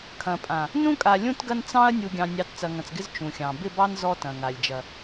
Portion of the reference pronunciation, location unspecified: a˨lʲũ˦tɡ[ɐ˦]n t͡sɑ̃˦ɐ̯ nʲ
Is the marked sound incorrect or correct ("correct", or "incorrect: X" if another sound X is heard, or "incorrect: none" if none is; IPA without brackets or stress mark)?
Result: correct